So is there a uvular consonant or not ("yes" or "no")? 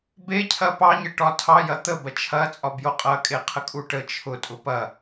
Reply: yes